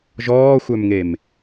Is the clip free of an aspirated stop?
yes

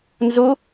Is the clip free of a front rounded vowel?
yes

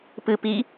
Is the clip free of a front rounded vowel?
yes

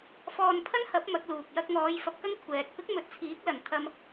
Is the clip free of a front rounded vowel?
yes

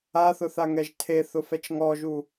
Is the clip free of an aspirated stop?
no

